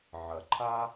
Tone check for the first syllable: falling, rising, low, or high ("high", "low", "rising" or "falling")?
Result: low